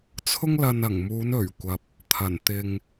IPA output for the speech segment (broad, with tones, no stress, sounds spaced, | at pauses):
t͡sʰ ʊ˥ ŋ l ɐ˧ n ɐ˨˩ ŋ m uː˨˧ n ɵ˨˩ ɥ kʷ ɐ˨ p̚ | t̪ʰ ɐ˨˩ n t̪ ɪ˧ ŋ